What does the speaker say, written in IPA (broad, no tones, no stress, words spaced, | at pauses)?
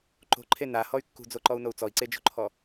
ǃo̤ǃʰe nahɔy̯ kːṳd͡zoǃɔu̯nou̯ t͡sɔi̯ǀed͡ʒo̤ǃʰɔ